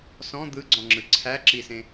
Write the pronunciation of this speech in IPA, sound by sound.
s ɔ̃ d̪ ɯ ɡ͡ǀ ɔ̃ ŋ͡ǁ ɯ ǀʰ æ ǁ i s ẽ

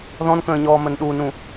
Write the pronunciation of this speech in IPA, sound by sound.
ð ɔ̃ n k ə̃ː ɲ ɔː m ə n ɗ u n ũ

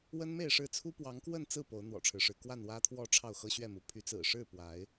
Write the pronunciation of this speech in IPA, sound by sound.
w ə˦ n m e˥˨ ɪ̯ ʂ ɻ̩˥˨ t͡sʰ u˦ p w ɑ˨˦ ŋ k w ə˥˨ n t͡s ɹ̩˥˨ p o˨˦ ʊ̯ n̪ w ɔ̰˨˩ ʈ͡ʂʰ ɻ̩˦ ʂ ɻ̩˨˦ k w a˥˨ n w ä˦ t̪ʰ w ɔ˥˨ ʈ͡ʂʰ ɑ˥˨ ʊ̯ x ɤ˦ ɕ ɥ ɛ˥˨ m u˨˦ pʰ y˨˦ t͡s ɹ̩˨˩ ʂ ɻ̩˥˨ p w a˨˦ ɪ̯

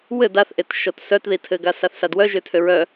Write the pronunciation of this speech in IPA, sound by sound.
w ɘ d a θ ʔ e t ʃ ɔ t s œ t ð i tʰ ɘ ɡ a s a θ s a d w œ ʒ ø tʰ ø ɹ œ

